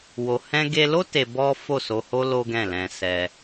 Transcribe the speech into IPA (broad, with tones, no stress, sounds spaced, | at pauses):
w o˨ h ɛ̃˧ ɡ e˧ l o˦ t e˧ b ɔ˦ f o˦˨ s o˧ h o˦ l o˦ ɡ ɛ̃˦˨ l ɛ̃˧ s ɛ˧